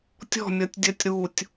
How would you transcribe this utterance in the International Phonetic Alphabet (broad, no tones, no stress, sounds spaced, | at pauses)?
tʲ ɔ̤ mʲ ɒ tʲ dʲ ɜ tʲ ɾ u tʲ